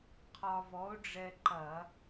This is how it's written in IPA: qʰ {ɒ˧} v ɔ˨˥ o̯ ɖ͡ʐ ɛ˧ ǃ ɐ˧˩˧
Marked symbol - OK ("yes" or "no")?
yes